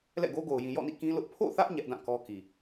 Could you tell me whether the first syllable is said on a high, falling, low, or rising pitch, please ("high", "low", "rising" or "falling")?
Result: falling